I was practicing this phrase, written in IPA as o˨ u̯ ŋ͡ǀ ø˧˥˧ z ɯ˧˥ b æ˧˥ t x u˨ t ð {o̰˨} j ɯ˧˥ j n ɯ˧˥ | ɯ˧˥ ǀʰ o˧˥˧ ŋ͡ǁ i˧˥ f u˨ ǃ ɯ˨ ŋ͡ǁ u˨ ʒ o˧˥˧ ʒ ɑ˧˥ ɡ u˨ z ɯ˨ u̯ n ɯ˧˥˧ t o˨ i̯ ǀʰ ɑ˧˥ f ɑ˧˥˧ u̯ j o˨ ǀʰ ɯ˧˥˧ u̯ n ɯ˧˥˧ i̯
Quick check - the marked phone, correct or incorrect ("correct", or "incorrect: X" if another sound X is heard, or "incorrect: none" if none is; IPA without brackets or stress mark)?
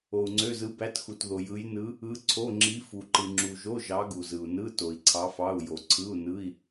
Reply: incorrect: o˨